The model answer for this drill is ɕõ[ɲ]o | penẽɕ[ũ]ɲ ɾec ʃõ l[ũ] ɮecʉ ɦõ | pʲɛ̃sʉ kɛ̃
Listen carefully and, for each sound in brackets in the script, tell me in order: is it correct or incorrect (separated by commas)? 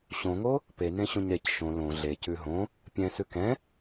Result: incorrect, incorrect, incorrect